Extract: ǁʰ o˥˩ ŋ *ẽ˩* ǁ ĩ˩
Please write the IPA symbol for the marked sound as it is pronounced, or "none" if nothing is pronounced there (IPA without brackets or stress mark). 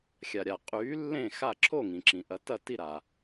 ĩ˩